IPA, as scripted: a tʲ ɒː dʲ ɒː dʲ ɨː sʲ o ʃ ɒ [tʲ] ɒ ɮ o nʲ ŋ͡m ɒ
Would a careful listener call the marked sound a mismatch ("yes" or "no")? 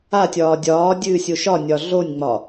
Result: yes